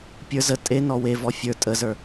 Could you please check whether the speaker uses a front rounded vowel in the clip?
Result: no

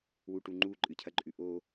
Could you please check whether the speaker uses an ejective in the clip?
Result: yes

